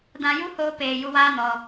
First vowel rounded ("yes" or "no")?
no